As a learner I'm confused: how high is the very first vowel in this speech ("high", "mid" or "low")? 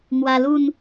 low